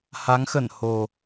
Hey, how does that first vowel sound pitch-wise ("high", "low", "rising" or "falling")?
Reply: rising